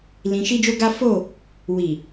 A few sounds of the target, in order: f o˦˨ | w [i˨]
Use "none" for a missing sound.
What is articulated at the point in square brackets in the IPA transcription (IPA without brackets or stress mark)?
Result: i˨